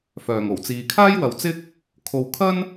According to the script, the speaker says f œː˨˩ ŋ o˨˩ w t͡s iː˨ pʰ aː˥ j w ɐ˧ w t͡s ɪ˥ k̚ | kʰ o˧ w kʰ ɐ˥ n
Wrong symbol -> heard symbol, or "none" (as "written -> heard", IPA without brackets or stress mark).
pʰ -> kʰ